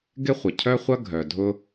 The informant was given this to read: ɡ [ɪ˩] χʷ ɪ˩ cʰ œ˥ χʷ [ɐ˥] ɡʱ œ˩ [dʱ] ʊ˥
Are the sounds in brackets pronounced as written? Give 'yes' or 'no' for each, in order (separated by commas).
no, yes, yes